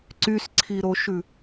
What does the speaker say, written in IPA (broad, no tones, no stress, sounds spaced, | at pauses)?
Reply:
ǀ y s ǀʰ i ɾ o ʃ ʉ